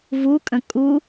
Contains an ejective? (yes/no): yes